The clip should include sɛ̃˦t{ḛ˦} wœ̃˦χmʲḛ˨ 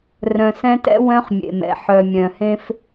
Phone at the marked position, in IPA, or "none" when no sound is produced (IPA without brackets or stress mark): ɛ̰˦